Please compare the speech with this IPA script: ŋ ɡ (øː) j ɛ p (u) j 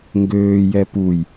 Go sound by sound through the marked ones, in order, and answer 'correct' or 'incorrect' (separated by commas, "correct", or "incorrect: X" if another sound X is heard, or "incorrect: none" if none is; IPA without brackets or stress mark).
correct, correct